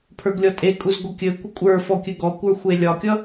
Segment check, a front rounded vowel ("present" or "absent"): absent